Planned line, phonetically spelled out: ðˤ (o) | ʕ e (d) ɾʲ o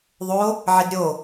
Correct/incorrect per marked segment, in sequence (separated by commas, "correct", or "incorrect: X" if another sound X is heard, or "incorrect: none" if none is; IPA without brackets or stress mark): correct, correct